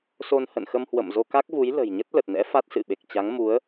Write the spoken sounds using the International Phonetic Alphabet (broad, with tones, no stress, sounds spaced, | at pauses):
s o˧ n h ə̰˧˨ n x ə˧ m h w ə̰˧˨ m z o˧ k a˦˥ k̚ v u˨˦ j l ə̤˨˩ j ɲ ə˦˥ t̚ l ə˨˩ t̚ n ɛ̰˧˥ f a˦˥ t̚ s ɨ̰˧˨ ɓ e˨˩ k̚ t͡ɕ a˨˦ ŋ m u˨˦ ə̯